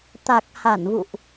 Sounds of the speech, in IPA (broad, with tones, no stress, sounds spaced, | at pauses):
t̪ a˨˩ k̚ h a˧˩ n v ṵ˧˨ ʔ